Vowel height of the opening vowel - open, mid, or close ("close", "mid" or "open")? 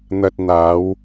open